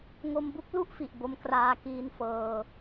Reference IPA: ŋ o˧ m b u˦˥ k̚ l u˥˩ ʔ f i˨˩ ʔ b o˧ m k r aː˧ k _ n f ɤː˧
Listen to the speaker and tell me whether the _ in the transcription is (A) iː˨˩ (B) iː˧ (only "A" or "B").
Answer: B